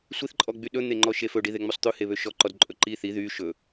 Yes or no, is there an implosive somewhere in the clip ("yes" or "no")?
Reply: yes